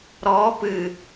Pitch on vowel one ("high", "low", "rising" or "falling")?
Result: rising